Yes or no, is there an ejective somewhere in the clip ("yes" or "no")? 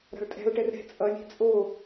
yes